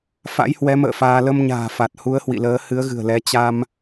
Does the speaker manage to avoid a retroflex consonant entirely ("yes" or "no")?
yes